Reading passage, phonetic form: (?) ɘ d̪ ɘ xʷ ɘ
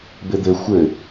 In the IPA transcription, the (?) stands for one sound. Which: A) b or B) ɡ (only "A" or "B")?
A